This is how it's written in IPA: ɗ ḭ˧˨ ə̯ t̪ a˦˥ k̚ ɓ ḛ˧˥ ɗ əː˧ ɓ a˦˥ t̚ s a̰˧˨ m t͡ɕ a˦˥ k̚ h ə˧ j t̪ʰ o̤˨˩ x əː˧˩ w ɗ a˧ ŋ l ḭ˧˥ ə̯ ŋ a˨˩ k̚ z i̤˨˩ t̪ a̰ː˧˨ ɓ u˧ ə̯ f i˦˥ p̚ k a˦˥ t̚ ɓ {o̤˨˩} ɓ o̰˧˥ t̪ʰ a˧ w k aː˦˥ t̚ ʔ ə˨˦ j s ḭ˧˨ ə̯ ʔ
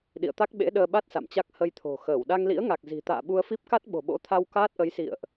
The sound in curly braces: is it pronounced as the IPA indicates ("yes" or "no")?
yes